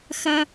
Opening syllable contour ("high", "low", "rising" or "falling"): high